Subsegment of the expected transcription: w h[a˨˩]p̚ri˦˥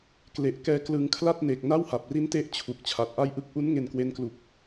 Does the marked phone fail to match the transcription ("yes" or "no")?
no